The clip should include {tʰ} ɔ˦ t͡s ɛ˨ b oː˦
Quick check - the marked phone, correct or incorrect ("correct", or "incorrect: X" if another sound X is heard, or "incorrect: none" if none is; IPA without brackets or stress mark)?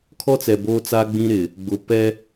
incorrect: kʰ